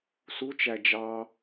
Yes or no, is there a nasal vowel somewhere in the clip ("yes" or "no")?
no